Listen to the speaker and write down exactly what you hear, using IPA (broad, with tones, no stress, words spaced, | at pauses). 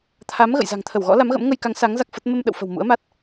t̪ʰa˨˦m ɣə̰˧˨jza̤˨˩ŋt̪ʰə˧˩wɣɔ̰˧˥ la˨˦mɣə̰˧˥m ŋə˧jka˨˦ŋ sa˨˦ŋ za˦˥k̚fə˦˥t̚ mə˧mɗə̰˧˨wfə̤˨˩w mṵ˧˥ə̯ma˦˥t̚